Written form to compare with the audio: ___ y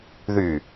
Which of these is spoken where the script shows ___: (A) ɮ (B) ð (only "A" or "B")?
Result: B